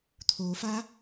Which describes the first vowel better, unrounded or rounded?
rounded